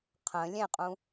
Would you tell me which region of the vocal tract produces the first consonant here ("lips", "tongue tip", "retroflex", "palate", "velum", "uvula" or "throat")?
uvula